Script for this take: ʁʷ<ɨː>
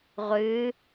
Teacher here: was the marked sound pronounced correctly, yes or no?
yes